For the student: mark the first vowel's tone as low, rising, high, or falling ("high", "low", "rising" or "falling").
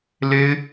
high